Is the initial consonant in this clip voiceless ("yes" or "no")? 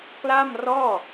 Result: yes